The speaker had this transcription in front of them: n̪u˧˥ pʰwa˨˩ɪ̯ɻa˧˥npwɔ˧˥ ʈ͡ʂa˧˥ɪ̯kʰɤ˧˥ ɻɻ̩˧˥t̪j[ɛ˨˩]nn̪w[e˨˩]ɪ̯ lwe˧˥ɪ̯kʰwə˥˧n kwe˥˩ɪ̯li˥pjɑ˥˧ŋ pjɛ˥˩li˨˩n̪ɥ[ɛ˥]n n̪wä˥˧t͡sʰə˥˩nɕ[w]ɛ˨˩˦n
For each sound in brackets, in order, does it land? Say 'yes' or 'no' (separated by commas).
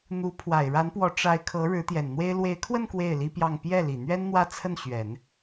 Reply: yes, no, yes, no